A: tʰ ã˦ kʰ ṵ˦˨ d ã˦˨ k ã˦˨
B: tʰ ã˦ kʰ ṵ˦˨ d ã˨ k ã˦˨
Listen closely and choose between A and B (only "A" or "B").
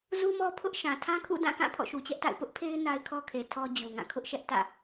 A